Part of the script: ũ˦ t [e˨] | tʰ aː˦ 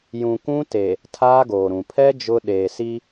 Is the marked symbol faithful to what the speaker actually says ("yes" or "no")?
yes